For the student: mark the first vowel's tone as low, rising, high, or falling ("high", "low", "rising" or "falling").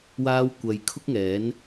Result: high